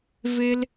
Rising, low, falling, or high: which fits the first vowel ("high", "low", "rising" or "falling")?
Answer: high